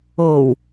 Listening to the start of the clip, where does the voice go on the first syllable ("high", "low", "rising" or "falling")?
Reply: low